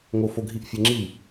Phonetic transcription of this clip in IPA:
ŋ o˦ f o˦ ɡʱ i˥˨ ʔ fʲ ɛ˦ ŋ͡ǁ i˥˨

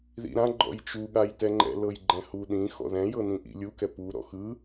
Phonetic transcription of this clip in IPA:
ð ḭ ɾ ã ɡ͡ǃ ɔ̰ j t͡ʃ u ɠ a j t ɛ ŋ͡ǃ ɛ̰ l ɤ j ɡ͡ǃ ɛ̃ h u ɗ ĩ x ɔ̰ ð ɛ̃ j ɤ n ĩ ʔ ḭ lʲ u k ɛ p u ɾ ɔ̰ x ɯ

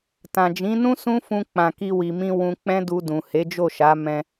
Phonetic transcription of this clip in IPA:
t ã˨ d͡ʒ ĩ˨˦ n ũ˦ s ũ˦ f ũ˧ k͡p ã˨ k i˧ w i˨ m ĩ˧ w ũ˧ k͡p ɛ̃˦ d u˧ d ũ˨ h e˨˦ d͡ʒ o˦˨ ʃ a˨˦ m ɛ̃˧

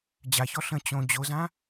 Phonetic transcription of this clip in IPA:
d͡ʑ a ç ɔ ɬ ə̃ t͡ɕ õ d͡ʑ o z ã

